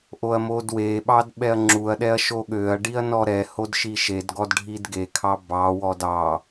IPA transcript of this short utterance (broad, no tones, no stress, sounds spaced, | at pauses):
ʔ o ɐ̯ m o d w e ɓ ɑ d ɓ ɛ ɐ̯ ŋ͡ǁ u ɐ̯ ɗ ɛ ɐ̯ ʃ o ɠ ø ɐ̯ ɖ i ɐ̯ n ɔ ɾ ɛ h o d ʃ i ʃ e d ɡ ɔ d ɖʱ i d ɡ e kʰ ɑ b ɑ w ɔ d ɑ